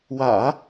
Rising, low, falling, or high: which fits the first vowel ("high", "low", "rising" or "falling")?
low